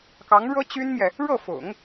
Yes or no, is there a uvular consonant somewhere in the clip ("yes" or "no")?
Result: no